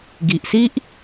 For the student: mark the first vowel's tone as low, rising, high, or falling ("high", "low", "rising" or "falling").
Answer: low